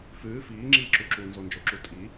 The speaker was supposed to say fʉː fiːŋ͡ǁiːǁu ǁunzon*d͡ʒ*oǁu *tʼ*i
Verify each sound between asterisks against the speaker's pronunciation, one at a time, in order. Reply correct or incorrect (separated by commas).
correct, correct